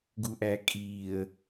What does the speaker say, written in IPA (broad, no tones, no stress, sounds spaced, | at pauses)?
ɡ u ʔ æ kʼ iː ə̯